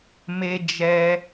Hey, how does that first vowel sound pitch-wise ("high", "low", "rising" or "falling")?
high